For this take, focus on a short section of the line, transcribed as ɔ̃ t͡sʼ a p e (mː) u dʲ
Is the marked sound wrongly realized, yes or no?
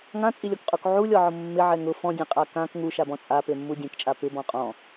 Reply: no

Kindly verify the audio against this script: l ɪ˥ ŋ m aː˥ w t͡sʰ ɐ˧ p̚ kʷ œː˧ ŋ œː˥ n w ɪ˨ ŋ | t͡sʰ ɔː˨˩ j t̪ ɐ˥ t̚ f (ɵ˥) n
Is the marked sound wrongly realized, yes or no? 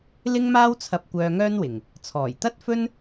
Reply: no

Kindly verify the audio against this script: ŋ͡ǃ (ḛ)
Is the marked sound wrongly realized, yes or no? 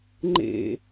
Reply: no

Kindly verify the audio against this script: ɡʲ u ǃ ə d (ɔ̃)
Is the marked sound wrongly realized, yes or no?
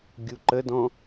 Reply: no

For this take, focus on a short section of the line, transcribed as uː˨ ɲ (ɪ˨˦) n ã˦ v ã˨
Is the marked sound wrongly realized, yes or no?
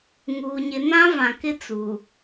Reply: no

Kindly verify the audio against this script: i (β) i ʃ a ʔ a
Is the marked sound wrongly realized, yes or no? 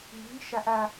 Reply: no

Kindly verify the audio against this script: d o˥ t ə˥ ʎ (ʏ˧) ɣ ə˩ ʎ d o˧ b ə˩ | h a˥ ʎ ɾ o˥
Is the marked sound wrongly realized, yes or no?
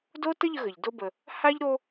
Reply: yes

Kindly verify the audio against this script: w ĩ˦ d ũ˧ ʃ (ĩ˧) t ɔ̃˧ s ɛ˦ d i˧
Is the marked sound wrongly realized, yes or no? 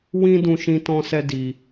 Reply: no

